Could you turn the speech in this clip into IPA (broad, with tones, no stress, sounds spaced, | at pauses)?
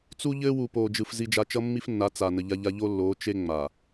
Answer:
t͡s u˦ ʎ ɘː˦ w u˨ p oː˨ d͡ʒ ɯ˨ f z i˦ d͡ʒ a˦ t͡ʃ ʌ˦ mː i˦ f nː a˨˦ t͡s a˨ n ə˨ ʎ a˦ ʎ a˦ ʎ o˦ lː oː˨˦ t͡ʃ e˦ ŋ͡m a˨